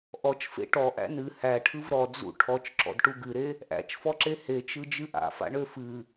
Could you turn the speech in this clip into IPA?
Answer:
ʔ ɔ t͡ʃ f ḛ ʈ ɔ ʔ æ̰ n ɨ h æ ʈʰ ɯ v ɾ ɔ d͡z ṵ ʈʰ ɔ t͡ʃ ǁ ɔ̰ d ʈ u ɡ ɨ ɾ e | ʔ æ̰ t͡ʃ f ɔ ǁ e h e t͡ʃ ɯ d͡ʒ ɨ ʔ a̰ f a̰ ɳ ø f ɨ

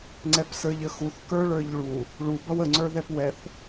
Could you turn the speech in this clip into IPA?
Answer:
ŋ͡ǀ ɛ p s ə˞ ʎ ə x u θ k ə˞ ɭ ə˞ ʎ ɭ u | ɭ u b ʌ w ə ŋ͡ǀ ə˞ ð ɛ p w ɛ θ

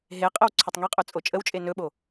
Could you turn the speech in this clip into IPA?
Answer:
ɦ e qʼ ə w ǀʰ ɵ tˤ ŋ e qʼ ɵ t͡sʼ o t͡ʃʼ ə w t͡ʃʼ e n ɵ ɓ o

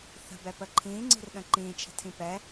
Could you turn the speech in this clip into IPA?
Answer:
θ ə̤ b ɛ p ə ǃʰ ĩː ŋ͡ǀ i̤ r ɗ ə̃ ǃ ĩː t͡ʃʰ ə̤ tʰ ĩ p ɛ

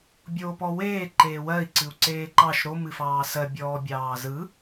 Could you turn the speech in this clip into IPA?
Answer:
bʲ oː p ɔ w eː ǃ eː w ɜ i̯ ǀ ɨ u̯ ǀ eː ǃ ɑ ʃ ɾ o m ɨ f ɑː s ɜ bʲ ɔː bʲ ɑː z ɯ

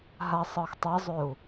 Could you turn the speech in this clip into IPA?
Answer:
ɦ a sˤ ɤ x tˤ ɤ zˤ ø u̯

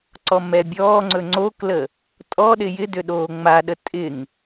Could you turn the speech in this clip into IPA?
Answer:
ǀ ɔ m ɛ bʲ ɔː ŋ͡ǀ ɵ ŋ͡ǀ o k l ə | tʼ ɔ ɗ ɪ j ɪ d ʏ ɗ oː ŋ͡m a ɗ ə tʼ ɪ ŋ

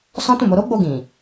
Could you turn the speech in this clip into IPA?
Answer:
s ɔ̃˦ t ũ˦˨ m o˧ ɾ o˦ ɡ͡b o˧ ɡ ĩ˨

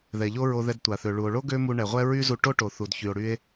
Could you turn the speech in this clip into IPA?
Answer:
ð ɛ˩ ʎ o˥ ɹ o˧ ð ɛ˧ d tʷ a˩ θ ø˩ ɭ u˩ o̯ ɭ o˥ ɡ ø˥ m u˧ ɳ ɛ˩ ʁʷ ɛ˥ ɹ y˥ z u˧ ʈ o˥ ʈ o˩ θ u˩ d ç y˩ o̯ ɽ y˧ e̯

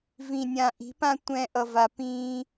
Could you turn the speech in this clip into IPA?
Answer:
v ĩ˨ nʲ ã˨ ʔ i̤˨˦ p ã˦ tʷ ɛ̃ː˧ ʔ ʌ˨ v a˨ p ĩː˧

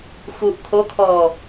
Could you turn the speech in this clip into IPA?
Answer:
x u ʔ kʰ o kʰ ɔː

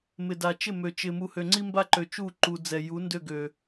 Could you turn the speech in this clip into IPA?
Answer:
m ɪ˨ d a˨ t͡ʃ ɪ˦˨ m ø˨ t͡ʃ ɪ˨ m u˨ h ø˨ ŋ͡ǀ i˦ m b a˦ ǃ ø˨ t͡ʃ u˦˨ ǃ u˨ d͡z ɛ˨ j u˨˦ n d ø˦˨ ɡ ø˨

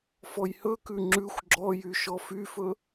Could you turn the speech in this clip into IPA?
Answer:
f ɔ j h ɵ k ʉ ŋ͡ǁ ʉ xʷ ɡ͡ǁ ɔ j y ʃ ɔ f y f ɵ

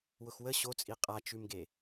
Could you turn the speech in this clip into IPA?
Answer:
w ʊ x w ə ɕ o t͡sʼ i qʼ a t͡ʃ ʉ m ɡ e

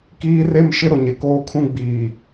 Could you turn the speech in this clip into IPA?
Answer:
k iː˦ r e˦ m ʃ ɪ˦ ɾ ʊ˨ ɲ ɪ˨ k oː˦ kʰ ũ˦ ɡ͡b iː˨

